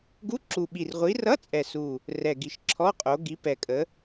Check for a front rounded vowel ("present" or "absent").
absent